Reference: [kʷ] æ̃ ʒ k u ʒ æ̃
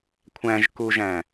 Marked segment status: incorrect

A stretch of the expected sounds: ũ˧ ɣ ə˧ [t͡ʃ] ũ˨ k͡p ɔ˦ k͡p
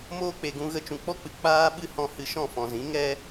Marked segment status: correct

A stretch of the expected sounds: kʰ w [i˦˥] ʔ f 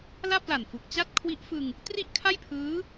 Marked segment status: correct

